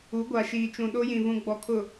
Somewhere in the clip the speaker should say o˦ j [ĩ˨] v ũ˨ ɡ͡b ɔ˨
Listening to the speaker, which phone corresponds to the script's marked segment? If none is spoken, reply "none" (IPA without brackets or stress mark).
ĩ˨